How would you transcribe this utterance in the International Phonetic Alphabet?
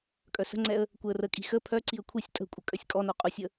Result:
kʼ œ s ə̤ ŋ͡ǀ ɛ ə̯ | kʷ ɛ ə̯ r ə kʼ i̤ x ə pʰ œ ǀ i ə̯ kʷʰ i sʲ tʼ ə̤ kʷʼ ə kʼ œ sʲ kʼ ɔ n o qʼ u sʲ ə

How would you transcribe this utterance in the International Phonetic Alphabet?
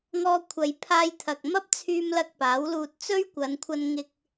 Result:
ŋ ɔː˧ kʷʰ ɐ˨˧ j pʰ aː˧ j t̪ʰ ɐ˨ k̚ m ɐ˥ p̚ t͡sʰ yː˧ m l ɐ˧ k̚ p aː˨˥ w l uː˧ t̚ t͡s ɵ˥ ɥ kʷ ɐ˨˧ n kʷʰ ɐ˧ n ŋ ɪ˧ k̚

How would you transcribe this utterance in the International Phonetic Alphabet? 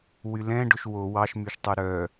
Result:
w y l ɛ̃ ɖ ɵ ʃ w o w ɑ ʃ m y ʃ tˤ y ɾ œ

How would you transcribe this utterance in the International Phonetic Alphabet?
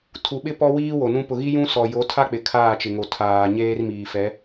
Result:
tʰ u˨ ɓ ɪ˦ p ɔ˦ w iː˦ w o˨ n ũ˦ p ʊ˨ ɣ i˦ j ũ˦ s ɔ˨ j o˨˦ tʰ a˦ k͡p ɪ˨ kʰ aː˦˨ t͡ʃ ɪ˨ ŋ o˨ tʰ aː˨ ɲ eː˦ r m iː˨ f ɛ˨˦

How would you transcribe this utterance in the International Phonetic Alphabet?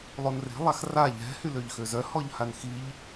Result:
lˠ o n r e̤ lˠ a x r a ʎ ɛ̤ h y l ø ʎ x ø z œ h ɔ ʎ h a n x i ʎ

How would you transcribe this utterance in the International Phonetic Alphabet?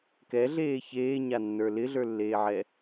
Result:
k ɛ ɮ eː ç eː ɲ a nː ə˞ l ɪ ɮ ə˞ lː eː ʕ ɛ

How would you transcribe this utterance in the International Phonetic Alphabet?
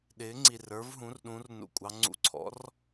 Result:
ɗ ɪː˩˥ ŋ͡ǀ i˨˩ r ə˞˩˥ v ɦ ũ˩˥ r ɗ ũ˩˥ r n ṵ˨˩ kʷʼ ɑ˩˥ ŋ͡ǀ ṵ˨˩ ǀʰ ɔ̰˩˥ r

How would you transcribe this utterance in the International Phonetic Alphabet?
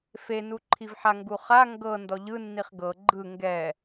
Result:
f e n u ǃʰ i v ħ a ŋ ɡ u χ a ŋ ɡ ɤ n d ɔ ʎ ɯ nː i χ ɡ ɤ ɡ͡ǃ ɯ ŋ ɡ ɛ

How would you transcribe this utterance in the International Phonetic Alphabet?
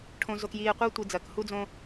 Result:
ʈʰ õ˨ z o˨ k j iː˨ e̯ qʷ ɜ˦ tʷ i˨ d͡z ɐː˨ k h u˦ d͡z õ˦

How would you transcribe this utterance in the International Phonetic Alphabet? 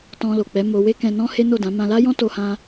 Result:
t ɔ̃˧ l o˨ k͡p ɛ˨˦ m o˧ w e˦ k ɛ̃˧ n ɔ̃˦ h e˦ n o˦˨ d ã˨˦ m ã˧ l a˦ j ɔ̃˦ t o˦ h ã˦

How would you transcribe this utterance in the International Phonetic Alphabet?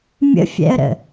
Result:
mʲ ə̰ fʲ ɛ̰ ə̯ ɾ ə̰

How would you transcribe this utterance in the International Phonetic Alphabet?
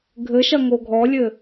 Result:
ɡʱ ɘ ʃ ɐ ŋ o ɡʱ ɔ lʲ ɘ

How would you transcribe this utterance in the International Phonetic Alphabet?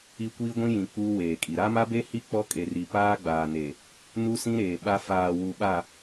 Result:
i˦ kʷ iː˦ ɡʷ ĩ˦ j ĩ˨ k͡p uː˦ w eː˨ kʼ i˨ ɾ a˦ m a˦ b e˦ h i˦ k͡p ɔ˦ kʼ e˨ r i˨ p aː˦ ɡ͡b aː˨ n e˨ | n u˦ s ĩ˦ ɾ eː˨ ɓ a˦ f aː˨ w u˨ ɓ a˨

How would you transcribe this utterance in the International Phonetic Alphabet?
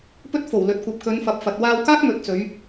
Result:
p ɵ˥ t̚ f o˨˩ w l ɵ˨˥ t̚ kʷ ɐ˨ p̚ k ɵ˨˧ n f ɐ˨ p̚ f ɐ˨ t̚ w aː˧ w k aː˥ k̚ m ɵ˨ t̚ t͡s ɵ˨˧ ɥ

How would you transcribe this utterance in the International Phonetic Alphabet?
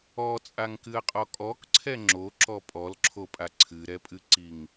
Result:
ɔ t͡sʼ a ŋ k ɨ ɐ̯ qʼ ɔ kʼ ɔ k ǀʰ ɛ ŋ͡ǁ o ǁ ɔ pʼ ɔ l ǁʰ o pʼ a ǀʰ ɨ ɾ ɛ pʼ ɨ ǀ i ŋ

